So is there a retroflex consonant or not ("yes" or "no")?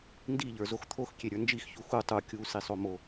no